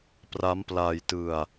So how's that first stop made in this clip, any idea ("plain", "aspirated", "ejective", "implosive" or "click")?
plain